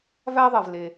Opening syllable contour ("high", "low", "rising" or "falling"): high